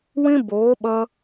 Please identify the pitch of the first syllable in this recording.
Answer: high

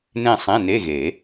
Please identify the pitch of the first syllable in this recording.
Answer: falling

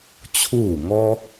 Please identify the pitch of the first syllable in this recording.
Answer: falling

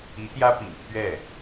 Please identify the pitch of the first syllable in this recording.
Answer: rising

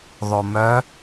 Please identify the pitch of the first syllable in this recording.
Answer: low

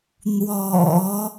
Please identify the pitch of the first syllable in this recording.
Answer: low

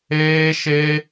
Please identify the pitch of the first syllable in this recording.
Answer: high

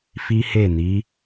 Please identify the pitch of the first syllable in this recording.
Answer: high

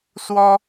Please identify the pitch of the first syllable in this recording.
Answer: high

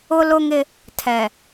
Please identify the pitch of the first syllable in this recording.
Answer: high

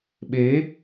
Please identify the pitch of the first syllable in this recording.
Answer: rising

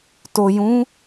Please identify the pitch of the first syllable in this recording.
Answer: low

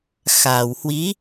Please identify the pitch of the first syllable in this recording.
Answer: low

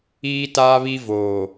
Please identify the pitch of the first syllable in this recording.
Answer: high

